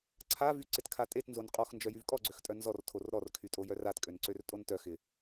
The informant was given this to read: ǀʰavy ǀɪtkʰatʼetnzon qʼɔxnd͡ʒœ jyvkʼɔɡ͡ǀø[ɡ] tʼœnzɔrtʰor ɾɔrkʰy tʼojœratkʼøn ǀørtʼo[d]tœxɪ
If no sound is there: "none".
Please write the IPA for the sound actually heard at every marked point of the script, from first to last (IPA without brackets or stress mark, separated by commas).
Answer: x, n